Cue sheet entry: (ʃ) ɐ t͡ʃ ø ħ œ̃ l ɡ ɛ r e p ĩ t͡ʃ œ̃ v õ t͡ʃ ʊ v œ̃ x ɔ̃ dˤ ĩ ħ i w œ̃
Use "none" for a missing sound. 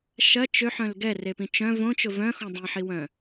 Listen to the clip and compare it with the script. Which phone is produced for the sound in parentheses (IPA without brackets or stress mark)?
ʃ